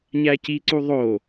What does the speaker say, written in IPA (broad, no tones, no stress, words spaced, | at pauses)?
ɲæciǀu ðˤo